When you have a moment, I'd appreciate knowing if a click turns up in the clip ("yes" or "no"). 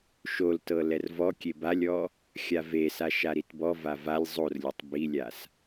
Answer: no